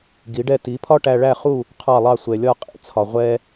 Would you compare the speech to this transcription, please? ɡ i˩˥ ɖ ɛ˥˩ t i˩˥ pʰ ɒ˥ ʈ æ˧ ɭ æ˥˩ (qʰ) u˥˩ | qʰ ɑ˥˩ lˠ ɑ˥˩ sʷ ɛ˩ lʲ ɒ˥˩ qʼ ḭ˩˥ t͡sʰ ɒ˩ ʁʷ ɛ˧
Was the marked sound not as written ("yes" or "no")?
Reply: yes